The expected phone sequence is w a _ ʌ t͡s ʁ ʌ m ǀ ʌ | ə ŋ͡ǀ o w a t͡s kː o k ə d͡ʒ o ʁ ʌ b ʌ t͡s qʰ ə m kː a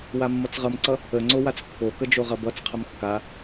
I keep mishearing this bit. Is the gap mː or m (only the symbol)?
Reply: mː